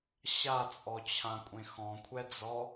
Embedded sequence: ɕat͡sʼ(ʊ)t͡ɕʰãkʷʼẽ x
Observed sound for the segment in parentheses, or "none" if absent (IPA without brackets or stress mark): ɔ